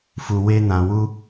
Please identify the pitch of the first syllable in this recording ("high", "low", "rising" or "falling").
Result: low